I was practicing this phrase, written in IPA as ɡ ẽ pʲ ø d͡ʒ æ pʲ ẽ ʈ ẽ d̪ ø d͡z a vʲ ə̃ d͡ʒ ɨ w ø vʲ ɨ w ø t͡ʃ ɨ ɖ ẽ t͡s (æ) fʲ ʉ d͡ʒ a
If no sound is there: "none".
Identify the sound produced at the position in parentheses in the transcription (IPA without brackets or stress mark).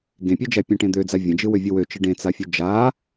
a